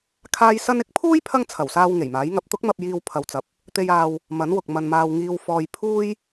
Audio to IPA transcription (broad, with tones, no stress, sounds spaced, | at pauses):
kʰ aː˥ j s ɐ˥ n ɪ˥ k̚ pʰ uː˥ j pʰ ɐ˥ ŋ t͡sʰ ɐ˨˩ w s aː˧ w ŋ e˨˩ j m aː˨˥ j ŋ ɐ˧ p̚ t̪ ʊ˥ k̚ m ɐ˧ p̚ j iː˧ w pʰ ɐ˨ w t͡s ɐ˨ p̚ | t̪ e˧ j aː˧ w | m ɐ˨˥ n w ʊ˨ k̚ m ɐ˧ n m aː˧ w ŋ iː˧ w f ɔː˧ j pʰ uː˥ j